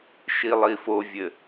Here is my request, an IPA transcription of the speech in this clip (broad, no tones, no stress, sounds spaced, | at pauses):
ʃ i lˠ i f o vʲ ɘ